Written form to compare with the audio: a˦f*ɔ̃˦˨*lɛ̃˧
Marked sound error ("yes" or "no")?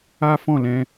no